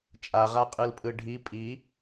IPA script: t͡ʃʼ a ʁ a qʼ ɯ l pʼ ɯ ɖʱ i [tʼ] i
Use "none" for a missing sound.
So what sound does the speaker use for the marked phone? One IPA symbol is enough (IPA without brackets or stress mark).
pʼ